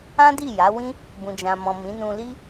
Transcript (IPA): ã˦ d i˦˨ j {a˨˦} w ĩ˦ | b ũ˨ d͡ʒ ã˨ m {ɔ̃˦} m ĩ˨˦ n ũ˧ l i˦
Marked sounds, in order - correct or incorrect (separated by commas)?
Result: correct, incorrect